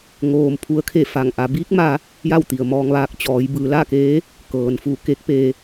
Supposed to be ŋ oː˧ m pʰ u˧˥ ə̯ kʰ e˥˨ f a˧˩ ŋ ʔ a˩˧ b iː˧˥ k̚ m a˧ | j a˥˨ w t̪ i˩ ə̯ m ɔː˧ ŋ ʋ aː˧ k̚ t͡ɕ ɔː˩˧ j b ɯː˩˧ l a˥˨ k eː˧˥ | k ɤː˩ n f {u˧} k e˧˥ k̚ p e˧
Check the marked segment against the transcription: incorrect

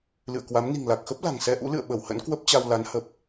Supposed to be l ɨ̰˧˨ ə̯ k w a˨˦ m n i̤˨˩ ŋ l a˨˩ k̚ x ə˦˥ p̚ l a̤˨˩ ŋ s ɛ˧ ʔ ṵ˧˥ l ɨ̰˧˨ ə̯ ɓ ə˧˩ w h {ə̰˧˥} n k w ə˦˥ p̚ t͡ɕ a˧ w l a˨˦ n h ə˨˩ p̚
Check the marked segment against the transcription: correct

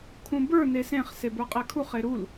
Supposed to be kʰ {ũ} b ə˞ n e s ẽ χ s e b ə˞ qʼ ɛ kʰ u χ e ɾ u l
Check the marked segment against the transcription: correct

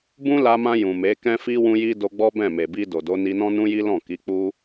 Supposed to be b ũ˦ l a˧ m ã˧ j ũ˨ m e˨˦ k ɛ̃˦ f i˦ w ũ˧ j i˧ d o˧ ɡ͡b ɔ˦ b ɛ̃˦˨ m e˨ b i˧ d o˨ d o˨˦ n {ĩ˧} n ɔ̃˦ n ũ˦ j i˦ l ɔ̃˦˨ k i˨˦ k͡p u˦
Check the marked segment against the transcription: incorrect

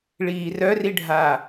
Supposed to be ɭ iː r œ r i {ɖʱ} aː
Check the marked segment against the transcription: correct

